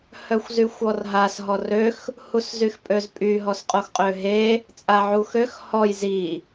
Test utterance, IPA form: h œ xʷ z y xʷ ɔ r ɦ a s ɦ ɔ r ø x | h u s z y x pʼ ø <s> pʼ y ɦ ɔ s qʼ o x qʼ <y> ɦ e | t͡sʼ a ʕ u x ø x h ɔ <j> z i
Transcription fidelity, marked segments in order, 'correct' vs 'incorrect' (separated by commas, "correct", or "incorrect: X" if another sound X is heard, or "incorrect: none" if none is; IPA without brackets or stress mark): incorrect: z, incorrect: ø, correct